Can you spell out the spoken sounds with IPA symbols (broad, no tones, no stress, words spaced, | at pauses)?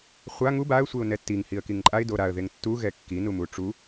χʷa ŋu baə̯sʷeʊ̯ nɛtːiŋ hiə̯kiŋǃʼaɪ̯do ɾaə̯ðeŋ tːuɣɛ kːinumu ʈ͡ʂu